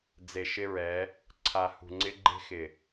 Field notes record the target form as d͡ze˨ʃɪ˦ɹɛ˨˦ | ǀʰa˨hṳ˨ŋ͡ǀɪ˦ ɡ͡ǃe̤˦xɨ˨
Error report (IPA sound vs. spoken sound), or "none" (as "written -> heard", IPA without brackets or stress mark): ɨ˨ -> ɪ˨